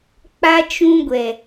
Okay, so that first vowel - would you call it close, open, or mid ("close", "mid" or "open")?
open